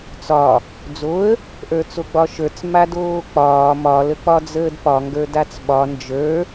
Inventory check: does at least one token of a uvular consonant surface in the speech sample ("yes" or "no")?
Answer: no